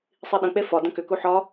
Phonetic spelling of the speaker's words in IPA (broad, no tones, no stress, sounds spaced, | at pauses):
sˤ i ɗ ə̃ k͡p e f ɒ d ə̃ k ʏ k u ħ ɒ